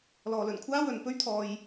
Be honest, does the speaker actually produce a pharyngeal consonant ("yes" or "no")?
no